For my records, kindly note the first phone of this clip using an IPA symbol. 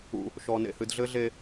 ṵ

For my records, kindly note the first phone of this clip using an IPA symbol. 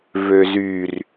v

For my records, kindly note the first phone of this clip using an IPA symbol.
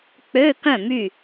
k͡p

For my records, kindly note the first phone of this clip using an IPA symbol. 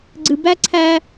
ɡ͡ǀ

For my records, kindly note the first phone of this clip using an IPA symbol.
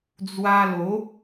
d͡z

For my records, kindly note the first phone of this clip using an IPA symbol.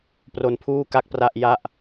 p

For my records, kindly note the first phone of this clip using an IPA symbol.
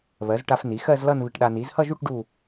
β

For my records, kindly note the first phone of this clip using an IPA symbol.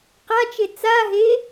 q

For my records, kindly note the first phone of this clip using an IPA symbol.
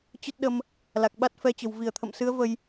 t͡ɕ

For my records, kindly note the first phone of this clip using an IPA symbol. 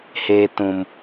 h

